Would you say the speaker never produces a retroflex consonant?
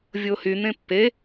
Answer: yes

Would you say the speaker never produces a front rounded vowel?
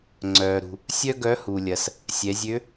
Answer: no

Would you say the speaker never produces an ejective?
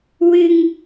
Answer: yes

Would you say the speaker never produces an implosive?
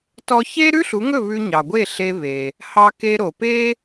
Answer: yes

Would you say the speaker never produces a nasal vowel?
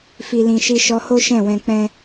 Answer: no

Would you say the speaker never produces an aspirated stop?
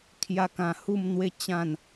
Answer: no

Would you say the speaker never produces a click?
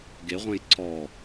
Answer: no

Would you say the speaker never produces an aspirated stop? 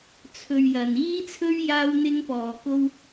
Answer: no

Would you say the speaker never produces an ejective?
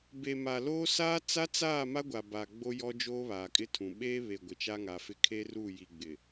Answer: no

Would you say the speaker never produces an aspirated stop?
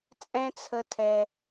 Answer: no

